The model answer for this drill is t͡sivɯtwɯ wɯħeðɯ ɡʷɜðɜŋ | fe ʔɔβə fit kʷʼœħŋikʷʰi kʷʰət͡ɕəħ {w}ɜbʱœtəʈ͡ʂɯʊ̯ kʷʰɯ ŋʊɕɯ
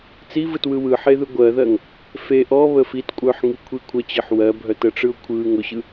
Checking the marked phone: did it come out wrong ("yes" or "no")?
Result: no